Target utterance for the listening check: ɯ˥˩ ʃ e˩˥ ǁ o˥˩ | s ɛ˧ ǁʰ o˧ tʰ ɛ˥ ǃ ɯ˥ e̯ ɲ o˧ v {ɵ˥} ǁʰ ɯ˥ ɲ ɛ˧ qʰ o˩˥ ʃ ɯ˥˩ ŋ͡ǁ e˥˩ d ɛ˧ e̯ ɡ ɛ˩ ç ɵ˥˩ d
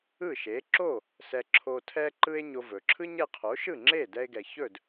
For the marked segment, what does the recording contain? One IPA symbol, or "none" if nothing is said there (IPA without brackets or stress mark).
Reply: ɵ˩